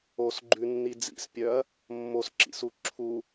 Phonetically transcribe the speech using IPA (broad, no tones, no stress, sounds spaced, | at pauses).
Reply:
o s ɡ͡ǃ ʉ nː i d͡z ḭ s pʲ œ ɐ̯ | mː o s ǁ ḭ s u ǁʰ u